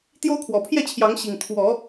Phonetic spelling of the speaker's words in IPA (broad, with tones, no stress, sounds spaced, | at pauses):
t̪ j o˦ ʊ̯ kʰ w ɔ˨˩ pʰ j ɛ˥˨ t͡ɕʰ j ɑ˨˦ ŋ ɕ i˨˩ ŋ t̪ʰ w ɔ˨˦